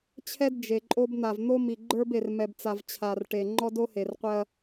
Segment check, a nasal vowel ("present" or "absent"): absent